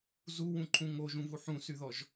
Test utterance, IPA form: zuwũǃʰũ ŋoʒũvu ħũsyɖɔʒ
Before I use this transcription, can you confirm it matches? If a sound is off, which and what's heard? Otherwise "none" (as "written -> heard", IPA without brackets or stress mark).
ɖ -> ð